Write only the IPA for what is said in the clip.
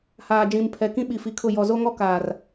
h aː˨ d͡ʒ ĩ˨ m pʰ ɛ˨ k ĩ˦ ɓ i˨ f i˨ kʰ ʊ˦˨ j ɔ˨ z o˦ ŋ ɔ˦ k aː˨ r

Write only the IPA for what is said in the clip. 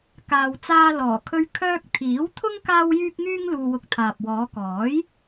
k aː˨ w t͡s aː˧ l ɔː˨˩ kʰ ɵ˧ ɥ kʰ œː˧ k̚ t̪ʰ iː˨˥ w t̪ʰ ʊ˥ ŋ k aː˥ w j yː˥ k̚ ŋ yː˥ ŋ l uː˧ w ʊ˧ k̚ t̪ʰ aː˨ p̚ w ɔː˨˧ k ɔː˨˥ j

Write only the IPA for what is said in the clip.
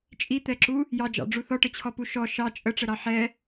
t͡ʃʼ i t̪ ɛ ǁ u | j ɑ d͡ʒ ɑ̰ ɖ͡ʐ u θ ɔ ʈ ə t͡ɕʰ ɔ p u ʃ ɔ ʃ ɑ t͡ʃʼ ə ʈ͡ʂ ə ɾ ɑ ħ ɛ

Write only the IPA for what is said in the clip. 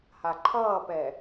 h a ǃʰ ʌː p ɛ

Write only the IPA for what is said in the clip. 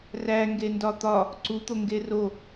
r æ ŋ ɡ e n d ɒ t̪ ɒ | ǀ u t̪ o ŋ ɡ e r o

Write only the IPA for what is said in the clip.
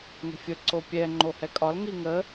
ŋ ə̤ fʲ ə ǀ o pʲ ɛ ŋ͡ǃ o h ɛ kʼ ɒ l ŋ i ŋ ə

